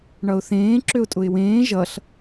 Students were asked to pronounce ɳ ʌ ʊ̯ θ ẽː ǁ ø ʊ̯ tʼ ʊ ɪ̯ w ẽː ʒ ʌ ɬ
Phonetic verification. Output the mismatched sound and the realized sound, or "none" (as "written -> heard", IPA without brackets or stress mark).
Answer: none